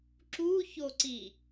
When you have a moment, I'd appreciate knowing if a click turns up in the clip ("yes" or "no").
yes